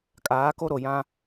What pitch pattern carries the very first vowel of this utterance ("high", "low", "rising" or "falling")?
rising